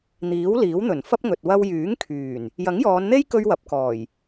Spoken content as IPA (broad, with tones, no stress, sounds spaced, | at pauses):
n̪ iː˨˥ w l iː˨˥ w n̪ ɵ˨˩ n f ɐ˥ p̚ ŋ ɵ˨ t̚ w ɐ˧ w j yː˨˥ ŋ kʰ yː˨˩ n | j ɐ˨˥ ŋ j ɔː˨˧ n n̪ e˥ j k ɵ˧ ɥ w ɐ˨˥ p̚ k ɔː˨˩ j